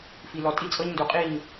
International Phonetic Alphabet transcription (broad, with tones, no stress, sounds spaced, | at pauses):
f i˨ l ɔ˨ tʼ i˦ t͡sʼ ɤ˦ ɲ n d u˨ qʼ i˦˨ ɲ